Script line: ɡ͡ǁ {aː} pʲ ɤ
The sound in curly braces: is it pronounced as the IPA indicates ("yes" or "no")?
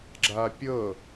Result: yes